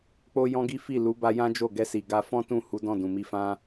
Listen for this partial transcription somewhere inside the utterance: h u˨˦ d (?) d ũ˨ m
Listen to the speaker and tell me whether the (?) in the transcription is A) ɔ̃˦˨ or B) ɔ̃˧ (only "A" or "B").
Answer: A